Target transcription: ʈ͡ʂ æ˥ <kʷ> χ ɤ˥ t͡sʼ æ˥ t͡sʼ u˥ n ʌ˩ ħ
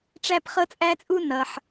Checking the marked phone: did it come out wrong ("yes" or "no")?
yes